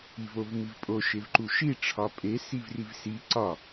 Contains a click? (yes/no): yes